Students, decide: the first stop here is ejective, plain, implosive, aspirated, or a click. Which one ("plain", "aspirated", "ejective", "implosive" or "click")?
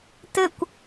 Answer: plain